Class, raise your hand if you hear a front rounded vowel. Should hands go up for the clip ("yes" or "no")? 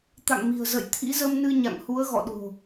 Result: no